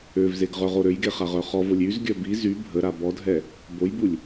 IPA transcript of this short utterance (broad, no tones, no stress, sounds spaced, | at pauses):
ø v z e ɡ ʁ œ ʁ o ɾ ø j ɡ e χ a ʁ œ χ ɔ v o lʲ y z ɡʲ œ b i z y bʱ ə ɾ a b ɔ dʱ ɛ | b o j b u lʲ